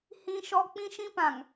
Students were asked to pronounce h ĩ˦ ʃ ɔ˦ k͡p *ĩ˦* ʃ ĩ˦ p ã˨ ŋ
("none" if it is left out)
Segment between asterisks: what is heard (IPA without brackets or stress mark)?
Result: ĩ˦